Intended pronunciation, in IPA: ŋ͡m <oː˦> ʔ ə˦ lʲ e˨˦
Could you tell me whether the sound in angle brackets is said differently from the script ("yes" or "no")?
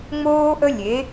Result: no